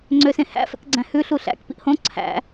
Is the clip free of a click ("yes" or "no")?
no